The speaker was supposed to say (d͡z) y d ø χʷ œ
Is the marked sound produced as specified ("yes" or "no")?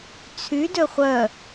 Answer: no